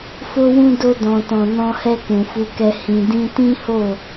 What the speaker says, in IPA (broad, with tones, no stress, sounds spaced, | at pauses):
f o˦ w ũ˦ d o˧ d ɔ̃˨ t ɔ̃˨ n ɔ̃˧ h ɛ˧ k ũ˨ f u˧ k ɛ˧ h ĩ˨ d ĩ˧ t ĩ˦ h o˦˨